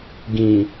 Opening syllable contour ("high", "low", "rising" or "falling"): low